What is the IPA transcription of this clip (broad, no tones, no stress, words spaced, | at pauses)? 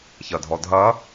çɐdʱɔdʱɐ